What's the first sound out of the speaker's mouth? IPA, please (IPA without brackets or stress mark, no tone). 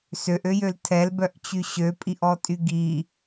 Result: s